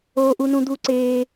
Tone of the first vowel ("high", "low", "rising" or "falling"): high